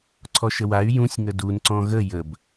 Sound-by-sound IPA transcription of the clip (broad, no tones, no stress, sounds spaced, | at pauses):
ǀʰ ɔ ʃ ə w a y̯ j ũ sʲ ŋ ə d u n ǀ ɔ̃ ɣ ə j ə b